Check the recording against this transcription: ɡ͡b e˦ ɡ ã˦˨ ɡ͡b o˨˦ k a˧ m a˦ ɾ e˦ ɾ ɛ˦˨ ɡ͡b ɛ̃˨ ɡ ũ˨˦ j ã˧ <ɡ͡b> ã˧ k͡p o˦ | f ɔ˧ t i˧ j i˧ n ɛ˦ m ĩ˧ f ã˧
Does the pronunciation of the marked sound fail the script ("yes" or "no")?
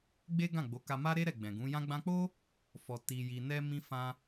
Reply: no